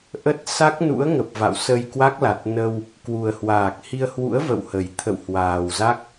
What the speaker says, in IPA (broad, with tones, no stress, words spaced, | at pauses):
ʔə˦˥t̚ sa˦˥k̚nṵ˧˥ə̯ŋə˨˩p̚ va̰˧˨wsə˧j kwa˦˥k̚la˨˩t̚ nə˧w | kwu˨˩ə̯hwaː˨˩k̚hi˧ə̯ hwṵ˧˥ə̯və̰˧˨whə˨˩j t̪ʰə̰˧˨whwaː˨˩wza˦˥k̚